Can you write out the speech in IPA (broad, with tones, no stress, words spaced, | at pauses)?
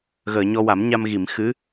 ɣəː˨˩˨ɲɔ˧wa˨˩˦mɲa˧m ɣi˨˩˨mxɨ˧˥